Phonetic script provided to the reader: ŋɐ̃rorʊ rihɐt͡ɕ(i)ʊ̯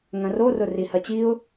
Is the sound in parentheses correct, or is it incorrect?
correct